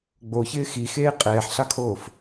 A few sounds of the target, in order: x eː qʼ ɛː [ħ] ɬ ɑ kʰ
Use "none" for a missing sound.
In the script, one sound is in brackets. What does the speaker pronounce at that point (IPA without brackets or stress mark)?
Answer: ħ